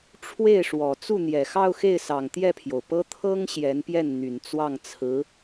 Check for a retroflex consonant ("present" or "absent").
present